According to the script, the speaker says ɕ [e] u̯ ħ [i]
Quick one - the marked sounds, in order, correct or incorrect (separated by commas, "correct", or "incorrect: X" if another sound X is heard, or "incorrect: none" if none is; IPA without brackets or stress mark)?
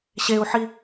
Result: correct, correct